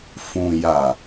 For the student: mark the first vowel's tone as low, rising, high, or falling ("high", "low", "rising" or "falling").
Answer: low